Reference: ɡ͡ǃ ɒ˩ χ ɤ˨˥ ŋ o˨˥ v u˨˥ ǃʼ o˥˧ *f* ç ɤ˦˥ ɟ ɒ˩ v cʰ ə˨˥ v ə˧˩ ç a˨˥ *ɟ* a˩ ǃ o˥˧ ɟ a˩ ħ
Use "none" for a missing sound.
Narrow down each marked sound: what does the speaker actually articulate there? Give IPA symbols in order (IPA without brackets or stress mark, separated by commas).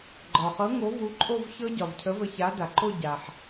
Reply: v, d